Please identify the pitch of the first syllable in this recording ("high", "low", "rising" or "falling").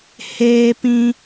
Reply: high